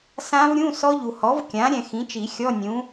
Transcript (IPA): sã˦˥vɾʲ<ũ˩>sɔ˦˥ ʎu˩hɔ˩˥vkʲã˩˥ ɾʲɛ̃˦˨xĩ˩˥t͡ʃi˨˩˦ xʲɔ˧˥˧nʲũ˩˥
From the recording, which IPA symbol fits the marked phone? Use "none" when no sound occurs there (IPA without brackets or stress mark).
ũ˧˥˧